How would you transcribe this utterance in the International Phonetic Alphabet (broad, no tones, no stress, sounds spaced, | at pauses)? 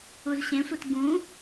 u z ɕ ẽ sʷ e t ɡ ũ